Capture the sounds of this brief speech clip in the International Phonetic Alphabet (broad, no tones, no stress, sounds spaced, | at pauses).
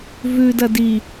v ʉ d ɐ d i